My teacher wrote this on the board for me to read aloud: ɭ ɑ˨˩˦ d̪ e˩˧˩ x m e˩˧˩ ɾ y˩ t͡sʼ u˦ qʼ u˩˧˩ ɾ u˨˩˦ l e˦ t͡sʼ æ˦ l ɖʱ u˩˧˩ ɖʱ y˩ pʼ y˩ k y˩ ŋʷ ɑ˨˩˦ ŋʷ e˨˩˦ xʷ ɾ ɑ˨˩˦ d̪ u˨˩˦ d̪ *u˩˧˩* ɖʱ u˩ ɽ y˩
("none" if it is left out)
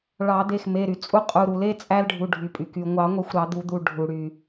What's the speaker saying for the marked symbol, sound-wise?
u˩˧˩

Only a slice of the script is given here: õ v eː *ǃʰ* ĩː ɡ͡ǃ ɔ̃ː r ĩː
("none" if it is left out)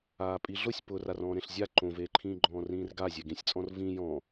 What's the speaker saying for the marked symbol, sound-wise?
ǃʰ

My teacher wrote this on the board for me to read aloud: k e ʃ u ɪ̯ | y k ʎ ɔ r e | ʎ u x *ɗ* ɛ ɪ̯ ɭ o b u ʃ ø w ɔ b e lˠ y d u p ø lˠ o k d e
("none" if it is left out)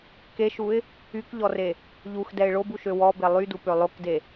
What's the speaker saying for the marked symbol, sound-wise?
d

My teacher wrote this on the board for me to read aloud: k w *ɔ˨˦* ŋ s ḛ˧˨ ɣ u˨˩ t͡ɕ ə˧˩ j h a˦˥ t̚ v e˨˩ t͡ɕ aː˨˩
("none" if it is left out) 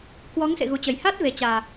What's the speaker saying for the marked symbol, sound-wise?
ɔ˨˦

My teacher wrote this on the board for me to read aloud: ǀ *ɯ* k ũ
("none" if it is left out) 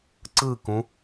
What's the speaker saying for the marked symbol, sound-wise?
ɯ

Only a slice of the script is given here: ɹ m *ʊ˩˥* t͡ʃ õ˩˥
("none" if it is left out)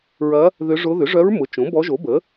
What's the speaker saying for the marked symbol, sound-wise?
ʊ˩˥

